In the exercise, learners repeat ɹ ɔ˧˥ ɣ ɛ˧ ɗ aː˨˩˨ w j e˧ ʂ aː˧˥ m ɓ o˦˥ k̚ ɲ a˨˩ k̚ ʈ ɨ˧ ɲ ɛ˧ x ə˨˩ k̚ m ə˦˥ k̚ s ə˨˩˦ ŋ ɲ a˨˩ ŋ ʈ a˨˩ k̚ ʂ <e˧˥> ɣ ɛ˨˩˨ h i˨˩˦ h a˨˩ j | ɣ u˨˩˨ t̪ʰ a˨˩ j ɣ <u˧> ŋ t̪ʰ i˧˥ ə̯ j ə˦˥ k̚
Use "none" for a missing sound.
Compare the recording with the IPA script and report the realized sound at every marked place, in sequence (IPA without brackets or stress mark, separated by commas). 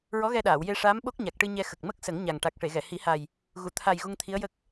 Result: e˨˩˨, u˧